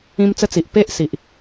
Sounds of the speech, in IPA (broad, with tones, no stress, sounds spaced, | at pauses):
ĩ˦ m t͡s ə˦ t͡s i˨ ʔ p e˦ ʔ s i˨ ʔ